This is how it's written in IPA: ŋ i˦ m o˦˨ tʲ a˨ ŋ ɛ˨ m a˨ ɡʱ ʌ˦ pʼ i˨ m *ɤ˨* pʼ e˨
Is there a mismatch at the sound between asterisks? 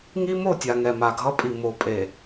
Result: yes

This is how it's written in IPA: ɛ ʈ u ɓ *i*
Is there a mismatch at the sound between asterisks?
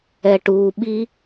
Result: no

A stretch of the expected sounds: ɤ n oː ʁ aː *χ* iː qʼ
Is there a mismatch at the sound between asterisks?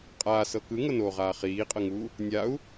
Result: no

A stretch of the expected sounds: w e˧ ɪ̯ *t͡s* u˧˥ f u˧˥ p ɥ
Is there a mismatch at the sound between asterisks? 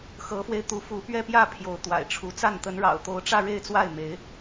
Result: yes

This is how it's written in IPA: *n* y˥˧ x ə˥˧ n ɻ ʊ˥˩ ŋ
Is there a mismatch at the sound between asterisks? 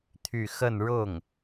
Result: yes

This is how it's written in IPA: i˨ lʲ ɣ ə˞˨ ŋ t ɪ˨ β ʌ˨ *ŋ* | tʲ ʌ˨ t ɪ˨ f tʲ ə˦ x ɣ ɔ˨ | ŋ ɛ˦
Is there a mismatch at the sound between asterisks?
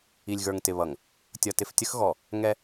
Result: no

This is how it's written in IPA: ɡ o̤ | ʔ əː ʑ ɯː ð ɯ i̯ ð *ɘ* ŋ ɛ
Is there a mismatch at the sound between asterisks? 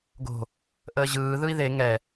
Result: yes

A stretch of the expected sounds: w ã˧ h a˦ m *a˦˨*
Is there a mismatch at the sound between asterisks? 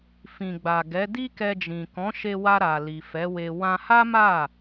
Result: no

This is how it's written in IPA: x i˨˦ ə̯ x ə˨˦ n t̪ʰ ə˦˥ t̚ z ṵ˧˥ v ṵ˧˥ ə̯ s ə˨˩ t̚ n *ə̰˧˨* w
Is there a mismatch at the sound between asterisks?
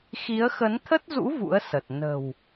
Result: yes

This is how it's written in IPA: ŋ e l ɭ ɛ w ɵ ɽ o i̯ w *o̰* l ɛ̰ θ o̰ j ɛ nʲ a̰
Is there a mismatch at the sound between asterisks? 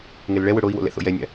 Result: no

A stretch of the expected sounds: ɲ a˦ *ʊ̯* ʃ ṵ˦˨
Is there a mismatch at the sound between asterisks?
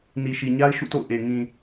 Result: yes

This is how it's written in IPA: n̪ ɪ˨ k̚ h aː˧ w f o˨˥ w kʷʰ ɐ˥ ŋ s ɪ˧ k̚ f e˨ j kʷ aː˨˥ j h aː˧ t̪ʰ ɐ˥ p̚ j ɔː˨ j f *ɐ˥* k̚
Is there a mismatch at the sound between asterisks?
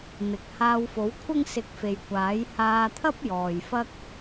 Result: no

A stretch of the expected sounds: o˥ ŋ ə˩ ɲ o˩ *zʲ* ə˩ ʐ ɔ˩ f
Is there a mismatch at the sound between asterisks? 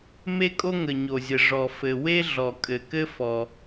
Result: no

